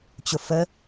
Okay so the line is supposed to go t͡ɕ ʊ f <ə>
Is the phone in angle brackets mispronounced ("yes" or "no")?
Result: no